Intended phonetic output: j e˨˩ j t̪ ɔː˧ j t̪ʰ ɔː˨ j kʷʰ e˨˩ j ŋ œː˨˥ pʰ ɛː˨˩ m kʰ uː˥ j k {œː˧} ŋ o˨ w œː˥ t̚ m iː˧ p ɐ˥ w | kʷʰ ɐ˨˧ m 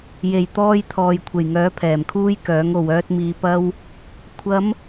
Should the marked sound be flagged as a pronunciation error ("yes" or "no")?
yes